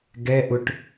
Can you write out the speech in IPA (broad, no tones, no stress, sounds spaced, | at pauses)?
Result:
ɡ ɛ ʔ ʊ ʈ